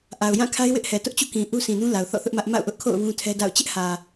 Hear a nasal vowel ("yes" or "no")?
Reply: yes